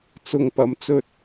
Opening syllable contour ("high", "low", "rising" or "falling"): low